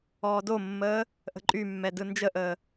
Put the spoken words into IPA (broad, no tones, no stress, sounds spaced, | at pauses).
ɔː d o mː əː | ʔ ə̤ ǃʼ y mː ɛ d ɯ n d͡ʒ ə ʔ əː